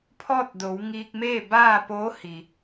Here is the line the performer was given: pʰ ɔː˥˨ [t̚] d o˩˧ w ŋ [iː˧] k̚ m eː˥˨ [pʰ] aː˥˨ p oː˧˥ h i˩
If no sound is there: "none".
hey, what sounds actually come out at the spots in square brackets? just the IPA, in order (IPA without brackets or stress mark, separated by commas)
t̚, iː˧, b